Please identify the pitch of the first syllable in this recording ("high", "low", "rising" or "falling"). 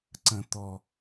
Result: low